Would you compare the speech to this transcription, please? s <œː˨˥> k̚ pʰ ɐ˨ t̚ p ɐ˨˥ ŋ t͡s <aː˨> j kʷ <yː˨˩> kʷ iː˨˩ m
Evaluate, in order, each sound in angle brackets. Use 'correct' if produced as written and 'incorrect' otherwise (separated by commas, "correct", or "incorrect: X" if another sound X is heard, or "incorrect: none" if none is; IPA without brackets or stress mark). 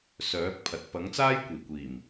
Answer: correct, incorrect: aː˥, incorrect: iː˨˩